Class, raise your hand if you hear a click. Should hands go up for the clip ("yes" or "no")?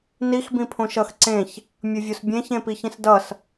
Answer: yes